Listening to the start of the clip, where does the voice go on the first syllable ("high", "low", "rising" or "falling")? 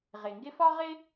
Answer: low